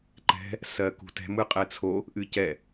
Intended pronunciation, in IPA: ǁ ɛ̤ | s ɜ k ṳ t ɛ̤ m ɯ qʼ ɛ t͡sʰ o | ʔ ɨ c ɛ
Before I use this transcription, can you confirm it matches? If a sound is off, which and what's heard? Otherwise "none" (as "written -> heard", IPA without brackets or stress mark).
ǁ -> ǃ